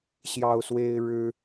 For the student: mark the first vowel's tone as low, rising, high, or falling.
high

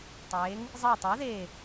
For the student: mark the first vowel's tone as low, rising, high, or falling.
rising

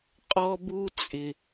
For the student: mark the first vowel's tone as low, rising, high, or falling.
high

